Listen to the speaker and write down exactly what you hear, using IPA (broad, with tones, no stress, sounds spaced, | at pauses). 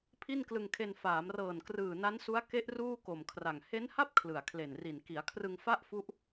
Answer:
pʰ i˥˩ n k l ɯ˧ ŋ kʰ e˧ n f aː˩˦ m r ɤː˨˩ n k r ɯː˨˩ n a˦˥ n s u˦˥ a̯ k e˦˥ ʔ r uː˥˩ k o˨˩ m kʰ r a˨˩ ŋ h e˦˥ n h a˥˩ p̚ kʰ l ɯ˨˩ a̯ kʰ l e˨˩ n r i˨˩ n k i˩˦ a̯ kʰ r ɯ˧ ŋ f a˥˩ ʔ f u˦˥ ʔ